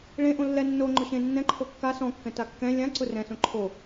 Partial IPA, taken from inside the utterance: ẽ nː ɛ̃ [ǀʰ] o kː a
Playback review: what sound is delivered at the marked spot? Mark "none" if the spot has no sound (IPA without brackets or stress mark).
ǃʰ